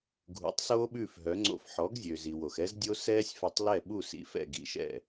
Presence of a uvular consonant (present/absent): absent